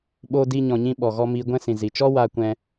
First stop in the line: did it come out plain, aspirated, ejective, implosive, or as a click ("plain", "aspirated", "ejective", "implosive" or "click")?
implosive